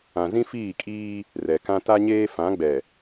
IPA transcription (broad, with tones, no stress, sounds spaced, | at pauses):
ã˨ z ĩ˦ f iː˦˨ kʼ iː˦ | r ɛ˨ k ã˦ t a˦ ɲ eː˦ f ã˨˦ ɡ͡b ɛ˨